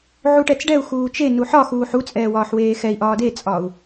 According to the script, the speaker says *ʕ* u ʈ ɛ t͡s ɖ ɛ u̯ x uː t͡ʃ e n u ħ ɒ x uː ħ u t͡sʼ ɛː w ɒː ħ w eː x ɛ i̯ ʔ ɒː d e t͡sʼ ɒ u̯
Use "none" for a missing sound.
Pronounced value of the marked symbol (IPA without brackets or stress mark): ʕ